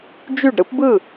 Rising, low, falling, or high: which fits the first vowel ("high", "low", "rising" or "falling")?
falling